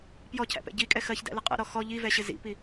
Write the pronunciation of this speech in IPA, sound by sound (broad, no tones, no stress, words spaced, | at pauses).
pjɔcʰæ̰pɛ̰ ɟikʼɛ xɜçdæ̰lɪ qʼɛ̰ɾɔ xɔ ʎivɛɕɪ zḭpi